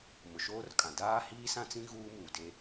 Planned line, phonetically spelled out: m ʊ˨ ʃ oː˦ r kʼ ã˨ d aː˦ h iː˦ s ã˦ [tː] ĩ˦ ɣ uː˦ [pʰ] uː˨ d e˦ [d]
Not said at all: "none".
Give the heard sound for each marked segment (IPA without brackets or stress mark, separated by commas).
t͡s, m, none